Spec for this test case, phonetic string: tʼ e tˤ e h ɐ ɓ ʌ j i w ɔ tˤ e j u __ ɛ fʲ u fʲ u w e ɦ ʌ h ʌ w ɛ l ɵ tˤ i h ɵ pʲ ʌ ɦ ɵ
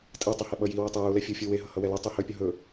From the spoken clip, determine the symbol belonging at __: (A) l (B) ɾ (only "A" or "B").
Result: A